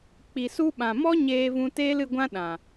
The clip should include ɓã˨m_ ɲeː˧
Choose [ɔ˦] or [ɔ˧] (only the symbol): ɔ˦